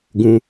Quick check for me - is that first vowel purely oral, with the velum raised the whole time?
no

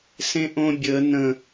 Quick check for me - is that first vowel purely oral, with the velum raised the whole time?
no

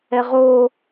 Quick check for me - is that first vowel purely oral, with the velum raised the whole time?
yes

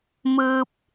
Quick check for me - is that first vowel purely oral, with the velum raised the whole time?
yes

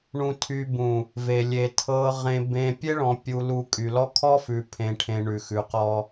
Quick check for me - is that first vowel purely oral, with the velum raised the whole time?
no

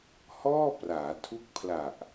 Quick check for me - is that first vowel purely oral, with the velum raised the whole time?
yes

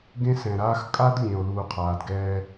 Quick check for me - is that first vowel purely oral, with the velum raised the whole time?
no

